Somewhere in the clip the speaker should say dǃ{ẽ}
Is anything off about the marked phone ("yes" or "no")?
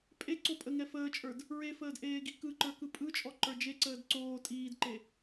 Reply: yes